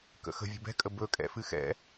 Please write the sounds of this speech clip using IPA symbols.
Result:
k ə̰ x ə̤ vʲ ə̤ b ɛ̤ kʼ ə b ɵ kʼ ɛ̰ f ɨ x ɛ̰

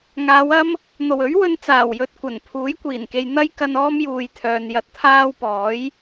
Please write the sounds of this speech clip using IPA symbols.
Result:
ŋ aː˨˧ w ɐ˥ m | n̪ o˨˩ w ɵ˨˥ ɥ w ɵ˨ n t͡s aː˨˩ w j ɵ˨ t̚ kʷ ɐ˨˩ n pʰ uː˨˥ j kʷ iː˨˩ n k e˨ j n̪ ɐ˥ j k ɐ˧ n ɔː˥ m j uː˨ j t̪ʰ œː˨ n j ɐ˧ t̚ t̪ʰ aː˥ w p ɔː˨˥ j

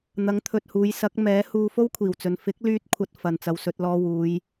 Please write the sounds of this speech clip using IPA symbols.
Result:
n̪ ɐ˨˥ ŋ t̪ʰ ɵ˨ t̚ h uː˨˧ j s ɐ˨˥ k̚ m ɛː˨˥ h uː˧ f o˥ w kʷʰ iː˨˩ w t͡s ɵ˨ n f ɪ˨˥ k̚ l yː˧ t̚ kʷʰ ɐ˨ t̚ f ɐ˨ n t͡s ɐ˨ w s ɵ˧ t̚ l ɔː˧ w uː˨˧ j

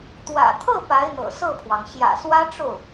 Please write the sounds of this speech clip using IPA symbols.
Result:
t̪ w ä̰˨˩ t̪ʰ ɤ˥˩ p a˧˥ ɪ̯ n̪ ɤ̰˨˩ s ɤ˥˩ pʰ w ɑ˩ ŋ ɕ j ä̰˨˩ s w ä˥ ʈ͡ʂ o˥˩ ʊ̯

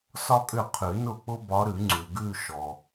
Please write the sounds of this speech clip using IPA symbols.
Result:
s ɒ˥ kʼ ʏ˥˩ qʰ ʉ˨˩˦ n ʊ˥˩ k͡p ʊ˥ b ɒ˧˥ ɾ ʉ˨˩˦ ŋ͡ǀ ʉ˨ ɡ ʉ˥˧ ʃ ɔ˨

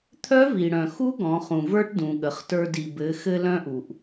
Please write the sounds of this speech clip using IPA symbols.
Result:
t̪ʰ œ˧˥ v i˩ ɽ œ̃˩ x u˧˥ ɡ ɔ̃˩˧ χ ũ˩ v ə˞˧ ʈ d ũ˩ ɠ ə˩˧ χ t ə˞˧ d i˩ b ɘ˩˧ x ɘ˧ l œ̃˧ ʔ u˩ ʔ

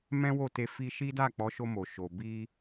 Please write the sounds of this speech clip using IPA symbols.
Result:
m ɛ̃˦ w o˦˨ t e˧ f i˧ ʃ i˦ d a˦˨ k͡p ɔ˨˦ ʃ o˧ m o˨ ʃ o˨ b i˧

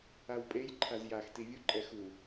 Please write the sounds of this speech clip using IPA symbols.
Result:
a w pʼ e j ǃʰ a z j a x t i vʲ u ǃʼ ɛ x u

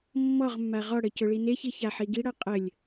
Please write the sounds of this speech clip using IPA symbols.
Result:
mː ɔ ʁ mː a ʁ ɔ ɽ ə c ɵ ɭ i n e ç i ç a ħ i ɡ i ɽ ʌ qʼ ə lʲ

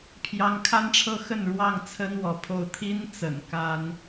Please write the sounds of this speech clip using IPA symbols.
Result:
pʰ j ɑ˨˦ ŋ kʰ a˦ n ʈ͡ʂʰ ɤ˦ x ə˥˨ n ɻ w ɑ˥˨ ŋ t͡sʰ ə˦ n w ɔ˨˦ pʰ o˦ ʊ̯ t̪ʰ i˦ n t͡s ə̰˨˩ n k a˦ n

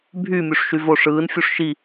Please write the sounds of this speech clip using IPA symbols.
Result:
bʱ y mʲ u ʂ ʃ y v o ʂ ɯː n fʲ u ʂ ʃ i

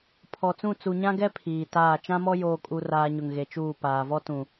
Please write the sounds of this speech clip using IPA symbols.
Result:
pʰ ɔ˨ t͡s ũ˦˨ t͡s u˨ ɲ ã˦ ɡ ɛ˦ pʰ iː˨ t aː˦˨ t͡ʃ ã˦ m ɔ˦ j oː˨ kʼ u˨ r aː˨ ɲ ʊ˨ ŋ ɣ e˨ t͡ʃ uː˦˨ p aː˨ v ɔ˦ t ũ˨

